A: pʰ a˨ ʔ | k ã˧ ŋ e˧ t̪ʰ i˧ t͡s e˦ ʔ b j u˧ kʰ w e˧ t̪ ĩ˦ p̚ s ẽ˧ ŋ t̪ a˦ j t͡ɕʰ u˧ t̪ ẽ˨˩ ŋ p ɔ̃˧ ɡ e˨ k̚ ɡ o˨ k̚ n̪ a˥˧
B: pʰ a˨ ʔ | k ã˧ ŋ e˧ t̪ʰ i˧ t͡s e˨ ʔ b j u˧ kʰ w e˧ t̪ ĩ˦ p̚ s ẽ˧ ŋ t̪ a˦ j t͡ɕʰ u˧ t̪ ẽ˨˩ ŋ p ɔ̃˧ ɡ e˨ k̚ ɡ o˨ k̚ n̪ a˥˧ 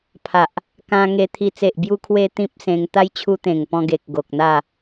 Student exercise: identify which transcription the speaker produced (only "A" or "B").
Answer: B